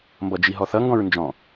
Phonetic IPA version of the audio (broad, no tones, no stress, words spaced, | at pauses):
mbʌd͡ʒiɦɔθʌ ŋɡɔ̃ɹnd͡ʒɔ̃